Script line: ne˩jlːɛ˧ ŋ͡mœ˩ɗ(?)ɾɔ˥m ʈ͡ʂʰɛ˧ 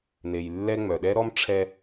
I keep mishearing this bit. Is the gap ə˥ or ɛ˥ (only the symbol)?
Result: ɛ˥